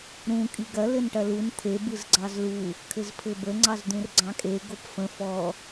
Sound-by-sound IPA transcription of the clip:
ɾ ũ kʼ i ɡ ɐ l ɘ n ʈ ɐ l u n t̪ʰ e b ɯ z ɡ͡ǀ ɑ z l u | kʰ ɘ z pʰ ɘ b ə ŋ͡ǀ ɑ z d̪ ũ r ɡ͡ǀ ɑ̃ kʼ e ɡ o p f ə̃ f ɔ

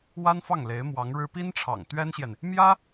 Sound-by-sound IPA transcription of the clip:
w a˥ n f ɑ˥˩ ŋ l e˧˥ ɪ̯ m w ɑ˧˥ ŋ ɻ ɻ̩˥ p i˥ n ʈ͡ʂʰ ɑ̰˨˩ ŋ t̪ ɥ ɛ˥ n ɕ j ɛ˨ n | m j ä˥

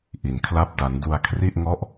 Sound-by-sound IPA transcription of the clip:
ʔ i˧ n kʰ l a˥˩ p̚ d a˦˥ n d u˧ a̯ kʰ r i˥˩ ʔ ŋ ɔ˥˩ ʔ

